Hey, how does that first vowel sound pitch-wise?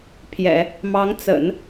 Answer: low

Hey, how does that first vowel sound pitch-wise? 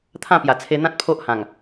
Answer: falling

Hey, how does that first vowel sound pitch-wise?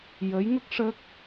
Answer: rising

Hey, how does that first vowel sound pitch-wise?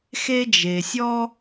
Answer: high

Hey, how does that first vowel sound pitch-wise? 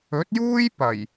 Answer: rising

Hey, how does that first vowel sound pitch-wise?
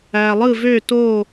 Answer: low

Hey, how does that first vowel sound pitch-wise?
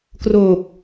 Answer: low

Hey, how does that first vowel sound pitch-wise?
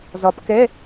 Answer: rising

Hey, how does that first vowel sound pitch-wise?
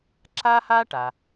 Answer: high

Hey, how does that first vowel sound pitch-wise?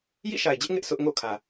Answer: falling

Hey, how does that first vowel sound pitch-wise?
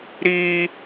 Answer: high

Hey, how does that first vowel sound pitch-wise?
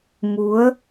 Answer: rising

